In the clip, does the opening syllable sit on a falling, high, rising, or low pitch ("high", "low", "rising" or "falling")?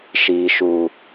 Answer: low